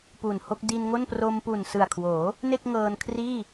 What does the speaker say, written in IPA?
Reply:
p u˨˩ n h o˥˩ k̚ d i˧ n ŋ o˥˩ n p r o˧ m p u˨˩ n s ɯ˨˩ a̯ kʰ w oː˩˦ | n e˥˩ k̚ ŋ ɤː˧ n kʰ r iː˥˩

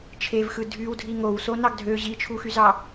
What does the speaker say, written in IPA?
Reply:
t͡ʃʰ e v x ɯ dʱ y w dʱ i ŋ o w s o n ɑ ɡ dʱ ø ʑ i t͡ʃʰ u x y z ɑ

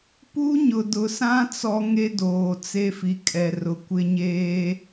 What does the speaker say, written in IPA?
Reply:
p u˦ ɲ ʊ˨ d ʊ˨ s ã˦ t͡s ɔ˦ ŋ e˦ d oː˨ t͡s e˦ f i˨ kʼ ɛ˨ r ʊ˨˦ kʷ ɪ˦ ɲ eː˦

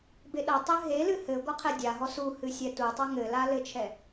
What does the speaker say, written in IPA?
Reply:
b e ɗ ɐ tˤ ɨ ɦ e l ɨ h ɘ ɡʷ ɐ qʰ ɛ dʲ a ɦ ɔ s u h ɨ sʲ ɛ t u tˤ ɐ ŋ ɘ l a l ɘ t͡ʃʰ ɛ

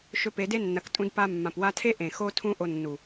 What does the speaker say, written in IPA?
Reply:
ʃ ɵ˧ p e˨˦ d e˦ nː ɐ˨˦ k tʼ ũ˧ d p a˧ mː ã˨ p w a˧ tʰ e˦ ʔ ẽ˨ x o˦ tʰ ũ˦ ʔ o˧ nː u˨

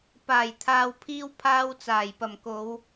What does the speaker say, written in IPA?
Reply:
p aː˨˩ j t̪ʰ aː˨ w pʰ iː˧ w pʰ aː˥ w t͡s aː˨˩ j p ɐ˨˩ m k o˨˧ w

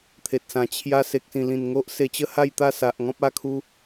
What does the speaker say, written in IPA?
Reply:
t̪ʰ e˨ t̚ s ã˨˩ t͡ɕʰ j a˧ s e˨ k̚ s ĩ˨˩ l ĩ˨˩ n ŋ o˦ ʔ s e˧ t͡ɕ ə˦ h a˥˧ j t̪ a˥˧ s a˨ ʔ ŋ ɔ̃˦ p̚ a˥˧ kʰ u˦

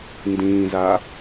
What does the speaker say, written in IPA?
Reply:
n d ĩː z a

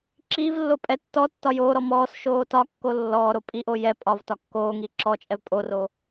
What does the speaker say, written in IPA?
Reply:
ǁ iː v lː o pʼ ɛ tː ɔ tː ɒ j oː ɾ ɔ m ɔː s ʃ oː t ɒ kː o lː ɔː ɾ o pʼ i ʔ o j ɛ pʼ ɒ v t ɒ kː oː ŋ iː ǁ ɔ t͡ʃʼ ɛ v pʼ o r o

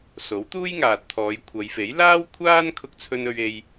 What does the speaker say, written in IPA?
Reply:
s o˨˥ w t̪ uː˥ j ŋ aː˨ t̚ t̪ʰ ɔː˨˧ j kʷʰ ɐ˨˧ j f e˨˥ j l aː˥ w kʷʰ aː˥ n kʰ ʊ˥ k̚ t͡sʰ ɵ˥ n ɵ˥ ɥ e˥ j

